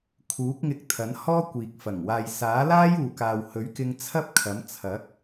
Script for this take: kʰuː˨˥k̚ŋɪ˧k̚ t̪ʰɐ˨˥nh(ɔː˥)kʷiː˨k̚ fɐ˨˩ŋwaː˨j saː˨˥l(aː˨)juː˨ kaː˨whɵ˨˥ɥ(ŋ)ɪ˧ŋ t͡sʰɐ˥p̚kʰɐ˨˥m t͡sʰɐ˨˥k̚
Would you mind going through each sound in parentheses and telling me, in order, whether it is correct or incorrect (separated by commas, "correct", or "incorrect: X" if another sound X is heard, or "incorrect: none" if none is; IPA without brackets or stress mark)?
correct, incorrect: aː˥, incorrect: k